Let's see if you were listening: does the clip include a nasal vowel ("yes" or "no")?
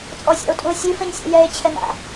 yes